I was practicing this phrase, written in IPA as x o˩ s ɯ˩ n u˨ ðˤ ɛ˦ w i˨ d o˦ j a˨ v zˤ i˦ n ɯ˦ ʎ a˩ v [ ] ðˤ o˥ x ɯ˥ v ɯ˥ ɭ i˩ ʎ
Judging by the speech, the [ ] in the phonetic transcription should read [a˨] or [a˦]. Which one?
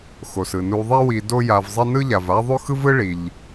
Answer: a˦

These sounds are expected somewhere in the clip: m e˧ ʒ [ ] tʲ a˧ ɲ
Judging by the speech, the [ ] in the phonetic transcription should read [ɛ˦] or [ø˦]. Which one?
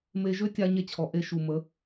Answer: ø˦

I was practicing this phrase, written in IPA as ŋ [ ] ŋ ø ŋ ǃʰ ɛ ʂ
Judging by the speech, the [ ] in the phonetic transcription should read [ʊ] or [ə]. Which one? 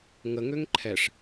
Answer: ə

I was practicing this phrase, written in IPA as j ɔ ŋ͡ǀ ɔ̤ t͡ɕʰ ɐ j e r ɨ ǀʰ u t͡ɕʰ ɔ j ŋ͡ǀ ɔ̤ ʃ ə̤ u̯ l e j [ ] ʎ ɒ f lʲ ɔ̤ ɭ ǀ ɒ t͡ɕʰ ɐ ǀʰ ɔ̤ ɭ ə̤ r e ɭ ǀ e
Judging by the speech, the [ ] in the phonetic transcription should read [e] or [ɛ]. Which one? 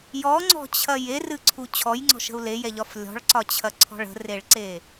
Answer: ɛ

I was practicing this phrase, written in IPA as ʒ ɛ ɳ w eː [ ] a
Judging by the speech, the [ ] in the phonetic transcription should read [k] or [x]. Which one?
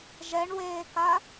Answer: k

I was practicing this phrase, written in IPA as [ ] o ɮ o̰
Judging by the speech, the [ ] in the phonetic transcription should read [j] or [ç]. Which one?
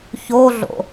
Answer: ç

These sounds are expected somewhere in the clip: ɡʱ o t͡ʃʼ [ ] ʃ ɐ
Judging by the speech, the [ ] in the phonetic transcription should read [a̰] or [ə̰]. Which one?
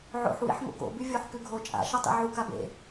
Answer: a̰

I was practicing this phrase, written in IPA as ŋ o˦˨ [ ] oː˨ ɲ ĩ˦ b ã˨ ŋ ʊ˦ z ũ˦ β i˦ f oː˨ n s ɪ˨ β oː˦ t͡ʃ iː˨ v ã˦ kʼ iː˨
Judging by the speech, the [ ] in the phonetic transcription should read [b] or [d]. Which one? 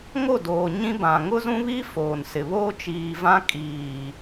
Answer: d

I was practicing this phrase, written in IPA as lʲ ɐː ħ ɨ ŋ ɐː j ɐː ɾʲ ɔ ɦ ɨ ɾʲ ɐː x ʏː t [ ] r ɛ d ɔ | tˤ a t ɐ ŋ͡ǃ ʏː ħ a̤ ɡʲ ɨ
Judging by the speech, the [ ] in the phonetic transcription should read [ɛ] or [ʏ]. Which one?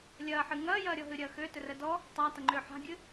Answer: ʏ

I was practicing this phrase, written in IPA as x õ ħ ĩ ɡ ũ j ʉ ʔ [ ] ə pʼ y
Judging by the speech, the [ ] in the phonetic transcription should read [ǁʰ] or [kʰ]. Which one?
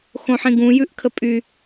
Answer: kʰ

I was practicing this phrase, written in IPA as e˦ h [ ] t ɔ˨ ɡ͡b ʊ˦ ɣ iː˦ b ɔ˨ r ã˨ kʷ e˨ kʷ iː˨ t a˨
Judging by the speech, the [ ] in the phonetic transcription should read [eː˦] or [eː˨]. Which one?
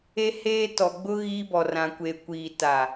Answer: eː˦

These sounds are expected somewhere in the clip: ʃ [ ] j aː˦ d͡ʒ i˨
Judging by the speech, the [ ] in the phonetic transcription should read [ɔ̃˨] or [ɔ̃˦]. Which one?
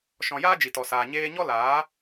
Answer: ɔ̃˨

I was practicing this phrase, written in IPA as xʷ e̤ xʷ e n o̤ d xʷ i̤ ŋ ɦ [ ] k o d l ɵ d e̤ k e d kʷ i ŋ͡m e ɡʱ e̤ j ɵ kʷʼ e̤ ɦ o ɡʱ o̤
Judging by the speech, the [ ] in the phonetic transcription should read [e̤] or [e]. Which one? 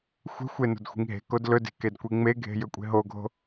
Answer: e̤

